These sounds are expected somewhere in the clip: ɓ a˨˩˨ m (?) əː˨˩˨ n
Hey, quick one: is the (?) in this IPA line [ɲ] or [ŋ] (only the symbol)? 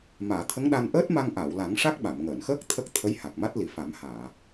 ŋ